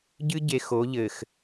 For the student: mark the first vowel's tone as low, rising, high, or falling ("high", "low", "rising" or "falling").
high